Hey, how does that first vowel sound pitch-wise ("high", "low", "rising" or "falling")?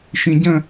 low